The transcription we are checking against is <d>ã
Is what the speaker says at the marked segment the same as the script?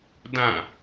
yes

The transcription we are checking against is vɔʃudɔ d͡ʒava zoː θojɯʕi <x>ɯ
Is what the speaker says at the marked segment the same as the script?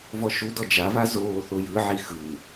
yes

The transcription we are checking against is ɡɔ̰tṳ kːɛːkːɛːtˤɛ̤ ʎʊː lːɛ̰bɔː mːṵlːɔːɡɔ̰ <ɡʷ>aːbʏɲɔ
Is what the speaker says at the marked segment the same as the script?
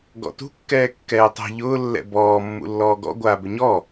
yes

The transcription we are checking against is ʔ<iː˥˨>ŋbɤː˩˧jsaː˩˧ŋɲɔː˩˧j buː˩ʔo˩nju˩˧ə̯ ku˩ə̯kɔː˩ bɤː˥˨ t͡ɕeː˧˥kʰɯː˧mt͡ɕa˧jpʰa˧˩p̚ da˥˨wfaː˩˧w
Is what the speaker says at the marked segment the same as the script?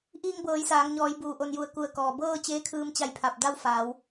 no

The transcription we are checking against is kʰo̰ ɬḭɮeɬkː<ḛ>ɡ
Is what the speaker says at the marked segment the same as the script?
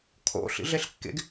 yes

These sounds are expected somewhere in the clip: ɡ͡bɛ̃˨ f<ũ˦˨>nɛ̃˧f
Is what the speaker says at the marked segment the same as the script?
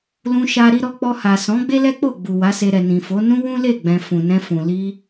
no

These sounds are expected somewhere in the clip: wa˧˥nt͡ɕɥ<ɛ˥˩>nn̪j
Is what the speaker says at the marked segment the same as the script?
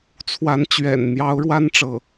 no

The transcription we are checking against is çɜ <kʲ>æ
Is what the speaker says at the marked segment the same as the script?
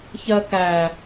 no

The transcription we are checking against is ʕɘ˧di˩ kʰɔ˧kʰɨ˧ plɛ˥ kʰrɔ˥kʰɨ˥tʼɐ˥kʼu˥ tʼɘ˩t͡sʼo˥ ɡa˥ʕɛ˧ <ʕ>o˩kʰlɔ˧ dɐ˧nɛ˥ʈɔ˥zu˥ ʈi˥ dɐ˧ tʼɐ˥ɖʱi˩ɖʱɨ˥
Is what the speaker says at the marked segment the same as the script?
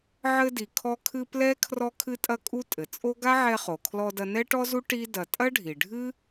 no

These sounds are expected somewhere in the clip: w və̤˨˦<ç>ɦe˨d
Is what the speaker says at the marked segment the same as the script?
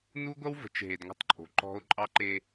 no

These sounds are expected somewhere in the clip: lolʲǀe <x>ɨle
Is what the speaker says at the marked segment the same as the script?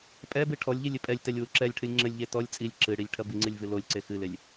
yes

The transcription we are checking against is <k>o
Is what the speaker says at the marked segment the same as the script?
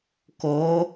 yes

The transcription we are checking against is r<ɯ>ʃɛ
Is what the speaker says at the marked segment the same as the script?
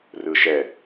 yes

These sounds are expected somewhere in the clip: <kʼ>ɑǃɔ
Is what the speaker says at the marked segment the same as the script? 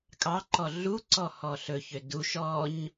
yes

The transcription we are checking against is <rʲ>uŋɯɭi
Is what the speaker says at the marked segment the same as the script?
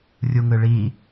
yes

